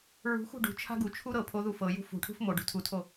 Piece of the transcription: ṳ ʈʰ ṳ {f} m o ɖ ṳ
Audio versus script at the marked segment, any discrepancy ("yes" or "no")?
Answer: no